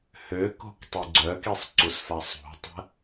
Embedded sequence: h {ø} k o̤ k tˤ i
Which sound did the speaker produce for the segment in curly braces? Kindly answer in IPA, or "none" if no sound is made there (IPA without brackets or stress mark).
ø